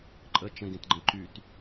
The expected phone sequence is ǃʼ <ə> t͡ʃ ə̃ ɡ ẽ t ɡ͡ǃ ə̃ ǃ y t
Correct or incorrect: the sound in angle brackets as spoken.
correct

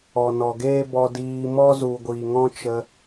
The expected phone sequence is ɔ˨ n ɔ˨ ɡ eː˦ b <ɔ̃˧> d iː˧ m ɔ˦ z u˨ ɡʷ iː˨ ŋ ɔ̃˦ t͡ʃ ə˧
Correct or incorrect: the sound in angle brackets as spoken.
incorrect: ɔ˧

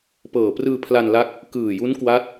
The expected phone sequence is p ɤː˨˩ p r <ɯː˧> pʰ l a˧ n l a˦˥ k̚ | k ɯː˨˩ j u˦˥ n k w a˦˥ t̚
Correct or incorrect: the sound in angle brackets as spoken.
correct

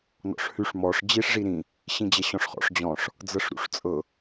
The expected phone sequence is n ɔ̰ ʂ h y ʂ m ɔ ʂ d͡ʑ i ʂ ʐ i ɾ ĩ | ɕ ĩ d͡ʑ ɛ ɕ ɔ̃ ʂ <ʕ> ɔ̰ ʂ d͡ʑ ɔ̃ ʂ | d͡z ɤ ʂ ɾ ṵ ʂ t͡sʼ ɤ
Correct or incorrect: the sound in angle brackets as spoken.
incorrect: χ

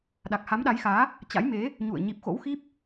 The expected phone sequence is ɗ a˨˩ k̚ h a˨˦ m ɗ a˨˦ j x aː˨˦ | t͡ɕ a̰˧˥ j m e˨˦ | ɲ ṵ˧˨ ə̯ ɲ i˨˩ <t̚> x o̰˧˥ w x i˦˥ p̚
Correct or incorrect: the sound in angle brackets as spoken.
incorrect: p̚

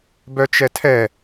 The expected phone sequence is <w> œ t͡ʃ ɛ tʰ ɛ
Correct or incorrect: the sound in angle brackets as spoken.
incorrect: b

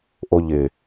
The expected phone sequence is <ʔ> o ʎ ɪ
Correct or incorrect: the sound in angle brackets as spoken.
correct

